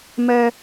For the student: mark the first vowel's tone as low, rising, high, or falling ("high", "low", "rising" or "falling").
high